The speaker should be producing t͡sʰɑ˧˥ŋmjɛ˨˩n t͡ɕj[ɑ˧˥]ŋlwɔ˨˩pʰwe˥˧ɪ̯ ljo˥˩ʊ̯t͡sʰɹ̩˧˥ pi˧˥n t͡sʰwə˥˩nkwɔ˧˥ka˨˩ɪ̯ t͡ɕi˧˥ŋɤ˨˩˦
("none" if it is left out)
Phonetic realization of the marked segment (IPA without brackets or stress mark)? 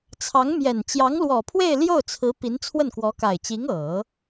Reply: ɑ˧˥